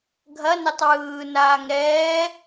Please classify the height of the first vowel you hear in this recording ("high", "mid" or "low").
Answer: low